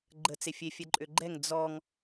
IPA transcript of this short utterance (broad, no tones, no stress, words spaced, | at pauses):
ɡ͡ǃət͡se fʲefʲɛǃʼø ɡ͡ǃɛŋ d͡zɔŋ